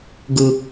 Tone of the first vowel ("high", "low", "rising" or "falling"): low